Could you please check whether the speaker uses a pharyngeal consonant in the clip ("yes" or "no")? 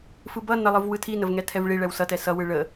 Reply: no